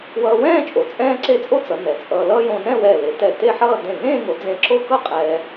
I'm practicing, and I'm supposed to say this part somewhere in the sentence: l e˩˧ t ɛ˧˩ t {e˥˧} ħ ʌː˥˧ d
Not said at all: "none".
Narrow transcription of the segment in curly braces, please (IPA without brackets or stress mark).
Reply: e˥˧